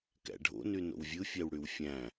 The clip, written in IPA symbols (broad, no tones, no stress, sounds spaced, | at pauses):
k æ̰ ɖʱ o̰ n y n o̰ w vʲ ɯ fʲ æ w ɽ y w fʲ æ̃